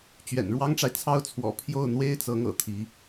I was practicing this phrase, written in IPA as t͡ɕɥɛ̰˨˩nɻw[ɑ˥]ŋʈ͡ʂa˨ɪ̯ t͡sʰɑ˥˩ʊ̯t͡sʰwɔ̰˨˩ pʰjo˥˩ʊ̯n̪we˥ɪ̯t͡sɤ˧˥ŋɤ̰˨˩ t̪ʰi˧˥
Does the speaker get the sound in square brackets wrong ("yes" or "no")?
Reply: no